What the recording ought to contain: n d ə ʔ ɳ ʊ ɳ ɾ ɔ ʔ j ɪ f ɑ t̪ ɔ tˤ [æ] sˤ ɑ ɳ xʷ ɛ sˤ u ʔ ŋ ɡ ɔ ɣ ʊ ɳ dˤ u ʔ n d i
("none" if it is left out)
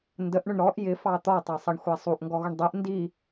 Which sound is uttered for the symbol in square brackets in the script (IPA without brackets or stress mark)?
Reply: æ